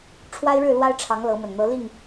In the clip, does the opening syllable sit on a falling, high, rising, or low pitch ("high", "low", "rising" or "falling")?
high